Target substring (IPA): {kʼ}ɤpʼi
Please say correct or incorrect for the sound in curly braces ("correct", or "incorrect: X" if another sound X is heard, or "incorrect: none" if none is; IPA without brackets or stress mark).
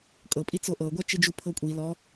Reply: correct